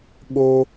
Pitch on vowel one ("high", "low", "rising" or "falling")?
high